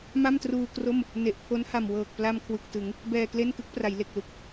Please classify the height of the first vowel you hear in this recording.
low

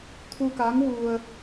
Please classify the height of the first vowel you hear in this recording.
high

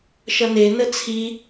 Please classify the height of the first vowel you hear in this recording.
mid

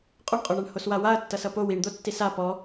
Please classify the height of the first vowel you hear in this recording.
mid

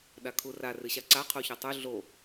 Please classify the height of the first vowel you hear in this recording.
low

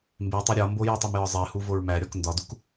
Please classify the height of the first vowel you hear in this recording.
mid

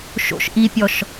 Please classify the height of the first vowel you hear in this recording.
mid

